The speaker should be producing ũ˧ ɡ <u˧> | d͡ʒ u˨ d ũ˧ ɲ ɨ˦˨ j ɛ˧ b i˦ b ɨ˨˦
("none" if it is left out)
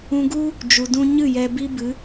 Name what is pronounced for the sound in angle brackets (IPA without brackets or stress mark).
u˦